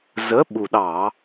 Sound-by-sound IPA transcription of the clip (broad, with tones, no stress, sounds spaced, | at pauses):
z ə˨˥ ɓ u˨˩ ɗ ɑ˧˩˧